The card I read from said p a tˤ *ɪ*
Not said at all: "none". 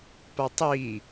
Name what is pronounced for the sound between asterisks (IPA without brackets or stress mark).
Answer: i